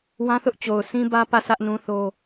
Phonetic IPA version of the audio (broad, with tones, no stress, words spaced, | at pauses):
wã˦θʊ˦ʔ t͡ɕo˨ʊ̯sʰĩ˦ bä˦pä˦˨ sä˦ʔnũ˦θo˦